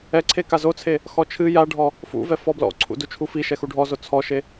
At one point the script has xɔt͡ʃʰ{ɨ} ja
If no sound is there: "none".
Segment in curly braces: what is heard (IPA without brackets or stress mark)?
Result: ɨ